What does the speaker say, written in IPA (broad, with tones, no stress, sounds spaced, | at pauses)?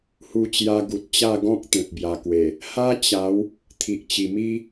h u˧ t͡ɕ j a˧ ɡ u˨ t̚ t͡ɕ a˥˧ ɡ ɔ̃˦ k̚ t̪ ẽ˨ t̚ b j a˨˩ k w e˨˩ | h a˦ t͡ɕ a˨˦ w | t̪ʰ i˨ ʔ t͡ɕ i˨˩ m i˦